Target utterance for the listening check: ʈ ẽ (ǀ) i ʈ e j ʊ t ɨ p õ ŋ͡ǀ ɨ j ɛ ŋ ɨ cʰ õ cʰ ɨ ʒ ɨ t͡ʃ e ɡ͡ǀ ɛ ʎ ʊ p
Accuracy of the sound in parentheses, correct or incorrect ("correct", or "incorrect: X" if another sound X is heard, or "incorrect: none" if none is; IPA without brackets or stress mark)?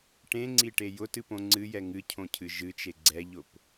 incorrect: ŋ͡ǀ